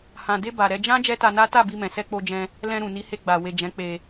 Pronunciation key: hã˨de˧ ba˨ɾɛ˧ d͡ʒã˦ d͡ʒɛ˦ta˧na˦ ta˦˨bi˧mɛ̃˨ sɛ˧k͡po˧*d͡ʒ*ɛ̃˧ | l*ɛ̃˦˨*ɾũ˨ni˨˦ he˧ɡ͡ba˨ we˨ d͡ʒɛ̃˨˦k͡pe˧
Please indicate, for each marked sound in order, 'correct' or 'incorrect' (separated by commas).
correct, incorrect